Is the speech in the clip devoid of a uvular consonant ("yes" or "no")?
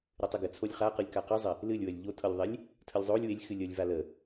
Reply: no